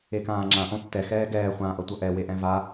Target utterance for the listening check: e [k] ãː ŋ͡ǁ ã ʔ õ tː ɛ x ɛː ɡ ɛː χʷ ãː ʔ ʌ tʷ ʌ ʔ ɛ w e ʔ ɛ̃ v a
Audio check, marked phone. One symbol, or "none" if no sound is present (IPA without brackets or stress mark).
k